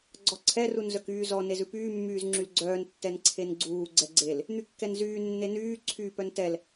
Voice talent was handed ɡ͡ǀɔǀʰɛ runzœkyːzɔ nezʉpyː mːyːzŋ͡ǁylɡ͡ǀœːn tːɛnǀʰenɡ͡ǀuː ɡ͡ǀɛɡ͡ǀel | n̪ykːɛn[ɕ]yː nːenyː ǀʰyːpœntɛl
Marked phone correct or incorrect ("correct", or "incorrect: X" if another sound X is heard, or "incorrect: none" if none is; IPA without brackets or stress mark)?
incorrect: z